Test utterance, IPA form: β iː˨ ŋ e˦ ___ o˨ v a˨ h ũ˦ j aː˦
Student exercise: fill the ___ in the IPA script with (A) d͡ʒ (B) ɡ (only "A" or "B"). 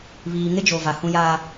A